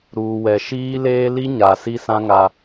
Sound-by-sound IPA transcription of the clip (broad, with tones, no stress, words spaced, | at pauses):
ɾuː˨wɛ˨ ʃiː˦leː˦ li˦ ɲa˨ si˦sã˦ ŋa˦